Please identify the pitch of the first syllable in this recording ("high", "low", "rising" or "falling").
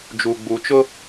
low